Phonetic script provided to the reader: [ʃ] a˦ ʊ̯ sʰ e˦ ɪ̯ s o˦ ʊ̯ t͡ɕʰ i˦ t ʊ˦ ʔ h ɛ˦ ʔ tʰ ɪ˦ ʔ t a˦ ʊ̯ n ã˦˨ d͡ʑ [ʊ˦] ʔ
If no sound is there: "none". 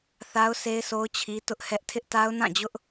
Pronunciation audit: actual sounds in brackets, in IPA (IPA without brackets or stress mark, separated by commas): θ, ʊ˦